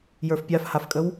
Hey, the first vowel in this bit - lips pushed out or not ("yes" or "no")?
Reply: no